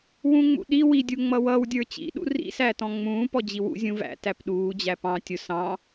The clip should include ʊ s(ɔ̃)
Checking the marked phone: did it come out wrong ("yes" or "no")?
yes